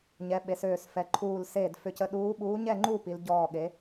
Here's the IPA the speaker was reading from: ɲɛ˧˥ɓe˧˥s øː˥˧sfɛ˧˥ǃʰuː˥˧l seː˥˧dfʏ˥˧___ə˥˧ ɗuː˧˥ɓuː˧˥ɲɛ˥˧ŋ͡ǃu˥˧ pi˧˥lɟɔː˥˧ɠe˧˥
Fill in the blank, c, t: c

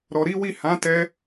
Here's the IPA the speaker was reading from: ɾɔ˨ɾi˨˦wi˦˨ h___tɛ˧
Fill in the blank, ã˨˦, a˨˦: ã˨˦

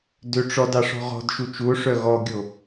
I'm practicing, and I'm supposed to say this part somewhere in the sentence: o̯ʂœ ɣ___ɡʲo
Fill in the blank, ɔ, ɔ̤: ɔ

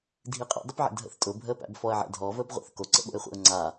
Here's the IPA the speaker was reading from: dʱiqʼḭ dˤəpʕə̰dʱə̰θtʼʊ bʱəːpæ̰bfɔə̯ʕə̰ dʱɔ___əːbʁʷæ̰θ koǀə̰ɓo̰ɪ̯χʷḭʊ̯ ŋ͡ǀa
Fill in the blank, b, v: v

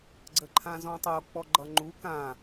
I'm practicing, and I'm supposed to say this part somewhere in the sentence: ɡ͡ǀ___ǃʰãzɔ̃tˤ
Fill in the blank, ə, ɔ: ə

